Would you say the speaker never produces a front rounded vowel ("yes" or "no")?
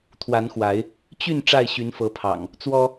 no